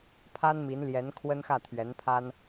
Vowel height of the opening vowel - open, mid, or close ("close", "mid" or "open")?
open